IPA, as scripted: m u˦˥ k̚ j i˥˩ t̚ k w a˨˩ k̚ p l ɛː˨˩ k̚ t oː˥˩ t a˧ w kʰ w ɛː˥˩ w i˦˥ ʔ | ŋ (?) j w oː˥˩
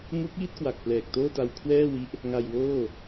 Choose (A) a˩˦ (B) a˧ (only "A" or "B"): B